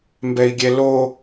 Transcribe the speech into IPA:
mbɛi̯ɡʲɛlo

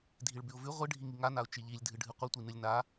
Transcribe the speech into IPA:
dʱiɭbʉʊ̯vʉ ʁʷɨ ɖʱiŋiŋanaʊ̯ t͡ʃiʎilʲdʱɨ ɖʱɨqʷɨtʷi nɨlʲna

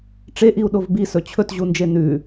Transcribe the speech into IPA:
ʈ͡ʂeʔiu̯ɗov bisɵ t͡ɕʰɵtʑund͡ʒe nʉ

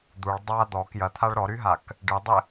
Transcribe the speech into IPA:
d̪uɭ dˤa d̪ɔk jɐt̪ʰaɭ ɾɔɾyɦak | ɖɨdˤɪ

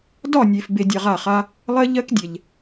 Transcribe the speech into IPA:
dɒ˦˨nʲe˨f be˧dʲa˧ʁa˦˨χa˦ | lˠɜ˦ʎɜ˦kdʲɛ˨ʎ

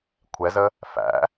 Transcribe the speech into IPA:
kʷʰɛzə | fæ̰

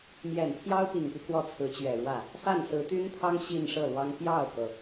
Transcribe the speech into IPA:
mjɛ˨˩npʰjɑ˥ʊ̯pi˨˩ŋpi˦ kwɔ˥˩t͡sʰɹ̩˧˥t͡ɕɥɛ˨˩ɻwä˥˩ | fa˥˩nsɹ̩˧˥t̪y˥npʰɑ˥ŋ ɕi˥˧nʂɤ˥˩lwɑ˥ŋ pjɑ˥˩ʊ̯kɤ˩

